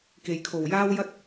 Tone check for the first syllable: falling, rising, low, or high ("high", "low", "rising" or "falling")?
low